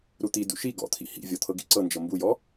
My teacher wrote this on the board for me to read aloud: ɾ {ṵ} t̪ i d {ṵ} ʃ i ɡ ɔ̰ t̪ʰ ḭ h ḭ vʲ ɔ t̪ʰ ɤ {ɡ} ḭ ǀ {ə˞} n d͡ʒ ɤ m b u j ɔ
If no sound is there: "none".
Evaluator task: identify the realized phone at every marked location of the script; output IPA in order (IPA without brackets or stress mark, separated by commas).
u, ṵ, ɡ, ɤ